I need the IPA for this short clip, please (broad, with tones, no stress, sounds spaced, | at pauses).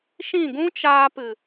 ʃ ĩ˦˨ ɡ ũ˦ t͡ʃ aː˧ p ɨ˨